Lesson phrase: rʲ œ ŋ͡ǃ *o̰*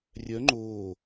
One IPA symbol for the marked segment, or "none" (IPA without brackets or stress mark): o